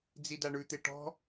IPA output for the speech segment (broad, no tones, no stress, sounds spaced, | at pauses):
d͡z i d a ɳ ʉ t̪ e ʈ ɔ̤